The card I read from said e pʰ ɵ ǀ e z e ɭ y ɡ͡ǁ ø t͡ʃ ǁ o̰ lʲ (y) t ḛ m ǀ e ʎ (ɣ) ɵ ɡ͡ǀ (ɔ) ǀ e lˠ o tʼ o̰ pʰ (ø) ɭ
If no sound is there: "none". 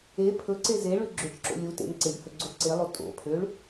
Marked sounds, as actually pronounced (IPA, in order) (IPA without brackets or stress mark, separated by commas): u, h, o, ø